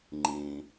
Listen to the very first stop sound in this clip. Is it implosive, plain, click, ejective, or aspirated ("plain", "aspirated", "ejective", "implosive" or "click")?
click